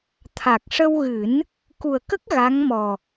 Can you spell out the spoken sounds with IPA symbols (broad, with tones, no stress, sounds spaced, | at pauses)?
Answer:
t̪ʰ a˨˩ k̚ ʂ ə˧ w ɣ ɨ˨˩˦ n | k u˨˩ ə̯ k ə˦˥ k̚ ɣ a˧˥ ŋ m ɔ˨˩